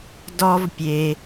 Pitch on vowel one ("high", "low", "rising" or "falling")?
high